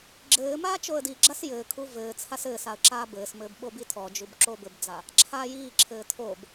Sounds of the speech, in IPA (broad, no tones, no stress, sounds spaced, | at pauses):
ɡ͡ǁ ɘː m aː t͡ʃ o ə̯ d i ɡ͡ǁ a s j ɘː kʰ u v ɘː t͡sʰ a s ɘː s a ə̯ ǁ aː b ɘː s m ɘː b ɓ o b i tʰ ɔ d͡ʒ u b ǁ o b ɘ b d͡z a | ǁʰ aː j iː ǁʰ ɘː tʰ oː b